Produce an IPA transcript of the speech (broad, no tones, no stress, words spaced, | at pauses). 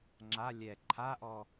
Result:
ŋ͡ǁa lʲɛ ǃʰaʔɔ